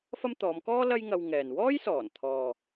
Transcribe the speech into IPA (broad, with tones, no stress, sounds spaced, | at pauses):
f ɐ˥ m t̪ ɔː˨˧ m k ɔː˥ l ɐ˥ j ŋ ɐ˧ w ŋ ɛː˨ n w ɔː˥ j s ɔː˨˩ n t̪ʰ ɔː˨